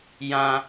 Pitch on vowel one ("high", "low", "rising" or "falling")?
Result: high